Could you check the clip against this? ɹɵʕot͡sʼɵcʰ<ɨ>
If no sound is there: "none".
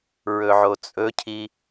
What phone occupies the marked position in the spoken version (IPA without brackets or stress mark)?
i